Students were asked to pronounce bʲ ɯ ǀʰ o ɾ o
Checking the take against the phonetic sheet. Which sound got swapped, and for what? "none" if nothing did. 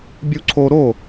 ɯ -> u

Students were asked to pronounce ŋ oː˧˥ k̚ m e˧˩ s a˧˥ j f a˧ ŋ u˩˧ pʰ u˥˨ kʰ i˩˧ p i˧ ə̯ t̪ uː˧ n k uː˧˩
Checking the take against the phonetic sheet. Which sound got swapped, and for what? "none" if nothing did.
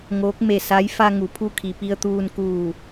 none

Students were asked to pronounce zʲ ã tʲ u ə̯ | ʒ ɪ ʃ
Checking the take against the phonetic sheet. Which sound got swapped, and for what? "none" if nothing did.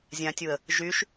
ɪ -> y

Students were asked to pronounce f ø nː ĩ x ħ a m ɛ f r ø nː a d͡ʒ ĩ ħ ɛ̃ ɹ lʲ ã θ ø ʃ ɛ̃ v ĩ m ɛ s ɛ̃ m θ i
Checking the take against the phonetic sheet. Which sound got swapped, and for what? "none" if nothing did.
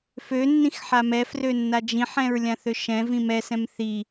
none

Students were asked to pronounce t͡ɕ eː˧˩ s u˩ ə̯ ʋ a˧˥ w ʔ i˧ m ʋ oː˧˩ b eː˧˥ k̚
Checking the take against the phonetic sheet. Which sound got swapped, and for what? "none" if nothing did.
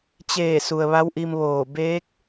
none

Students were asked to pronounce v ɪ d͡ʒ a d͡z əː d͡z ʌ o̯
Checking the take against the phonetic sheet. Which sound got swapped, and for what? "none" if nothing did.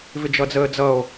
a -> ʌ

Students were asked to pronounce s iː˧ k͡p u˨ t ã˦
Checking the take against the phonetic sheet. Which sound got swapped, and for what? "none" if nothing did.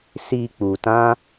none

